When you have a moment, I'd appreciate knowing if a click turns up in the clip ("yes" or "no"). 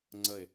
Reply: yes